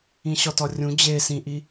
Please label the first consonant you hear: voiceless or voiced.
voiceless